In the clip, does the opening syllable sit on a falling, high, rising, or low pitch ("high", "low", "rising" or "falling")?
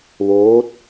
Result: rising